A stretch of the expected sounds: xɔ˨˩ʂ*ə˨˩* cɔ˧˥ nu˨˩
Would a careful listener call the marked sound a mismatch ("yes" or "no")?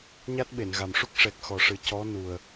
yes